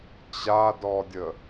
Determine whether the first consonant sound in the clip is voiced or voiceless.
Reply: voiceless